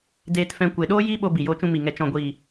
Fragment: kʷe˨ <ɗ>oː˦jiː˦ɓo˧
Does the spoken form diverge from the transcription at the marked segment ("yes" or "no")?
no